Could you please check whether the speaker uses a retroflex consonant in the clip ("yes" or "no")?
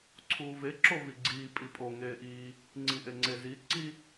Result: no